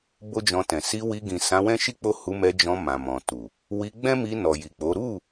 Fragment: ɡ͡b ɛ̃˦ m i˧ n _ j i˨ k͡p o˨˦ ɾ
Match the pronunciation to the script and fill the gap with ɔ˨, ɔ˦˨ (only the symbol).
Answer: ɔ˨